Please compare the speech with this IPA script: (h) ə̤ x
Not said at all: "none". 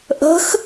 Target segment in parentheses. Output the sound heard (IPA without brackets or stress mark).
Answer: ʔ